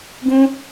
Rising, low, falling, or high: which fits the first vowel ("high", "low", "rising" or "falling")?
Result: high